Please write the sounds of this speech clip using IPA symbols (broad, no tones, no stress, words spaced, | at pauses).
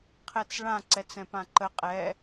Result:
qʰɛt͡sɭã ǀɛt͡sɛ̃pãǃə qʼɛ